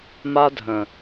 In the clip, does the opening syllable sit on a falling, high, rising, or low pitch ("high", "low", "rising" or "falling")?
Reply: high